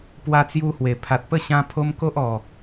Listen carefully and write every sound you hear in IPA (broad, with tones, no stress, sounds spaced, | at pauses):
p w a˦ t͡s j u˦ h w e˨˩ pʰ a˨ t̚ p ə˥˧ ɕ ã˦ pʰ o˦ m k o˦ ʔ ɔ˨˩